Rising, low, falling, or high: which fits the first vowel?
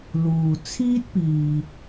low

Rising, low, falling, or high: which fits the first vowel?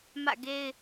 falling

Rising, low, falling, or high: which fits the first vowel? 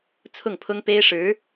falling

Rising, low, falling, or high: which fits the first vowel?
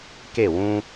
falling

